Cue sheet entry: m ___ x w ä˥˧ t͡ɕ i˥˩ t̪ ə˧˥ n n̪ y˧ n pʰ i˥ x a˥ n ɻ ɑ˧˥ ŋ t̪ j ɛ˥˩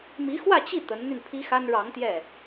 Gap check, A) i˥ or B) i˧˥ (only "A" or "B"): B